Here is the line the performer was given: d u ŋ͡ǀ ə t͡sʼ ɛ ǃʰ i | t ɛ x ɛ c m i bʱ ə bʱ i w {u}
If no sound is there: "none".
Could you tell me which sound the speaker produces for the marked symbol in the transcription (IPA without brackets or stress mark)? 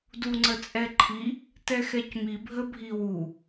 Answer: u